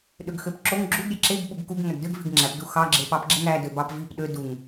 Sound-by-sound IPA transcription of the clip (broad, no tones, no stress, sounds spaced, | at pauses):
ɗ ø ɡ x ø p ǁ o ŋ ɡ͡ǁ u ɡ ɾʲ e ǁ e ɡ ɓ u ɡ k u ɡ ŋ æ ɡ d ø ɡ v i ɡ ŋ͡ǁ æ p d u x ɑ ɡ͡ǁ e p ɑ p ɡ͡ǁ e ŋ æ d ø b ɑ p v i p ɗ ø d u ŋ